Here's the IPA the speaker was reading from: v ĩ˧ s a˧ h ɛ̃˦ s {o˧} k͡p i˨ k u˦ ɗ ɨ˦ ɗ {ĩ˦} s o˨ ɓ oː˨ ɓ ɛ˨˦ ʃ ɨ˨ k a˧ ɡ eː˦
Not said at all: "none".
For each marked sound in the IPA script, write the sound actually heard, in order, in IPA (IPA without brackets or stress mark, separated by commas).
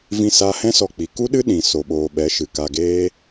ɔ˧, ĩ˨